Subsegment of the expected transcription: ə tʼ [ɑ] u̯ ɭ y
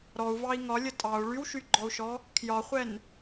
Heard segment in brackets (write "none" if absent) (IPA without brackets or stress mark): ɑ